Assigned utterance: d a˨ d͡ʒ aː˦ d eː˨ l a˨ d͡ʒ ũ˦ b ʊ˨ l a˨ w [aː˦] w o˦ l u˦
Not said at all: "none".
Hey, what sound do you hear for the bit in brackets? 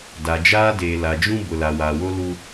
aː˨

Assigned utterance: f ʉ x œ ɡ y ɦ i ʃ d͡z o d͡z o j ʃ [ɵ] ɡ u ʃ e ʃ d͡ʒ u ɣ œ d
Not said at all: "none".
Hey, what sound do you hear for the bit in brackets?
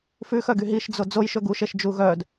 ɵ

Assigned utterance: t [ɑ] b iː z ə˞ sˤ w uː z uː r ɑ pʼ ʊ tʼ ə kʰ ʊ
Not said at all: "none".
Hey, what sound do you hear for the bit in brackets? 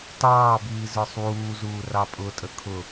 ɑː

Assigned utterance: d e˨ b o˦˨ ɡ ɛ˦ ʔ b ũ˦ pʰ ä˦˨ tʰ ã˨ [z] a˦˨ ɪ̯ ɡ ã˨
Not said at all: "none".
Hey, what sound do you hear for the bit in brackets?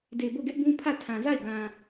z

